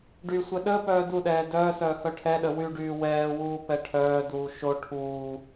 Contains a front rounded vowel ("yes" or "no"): yes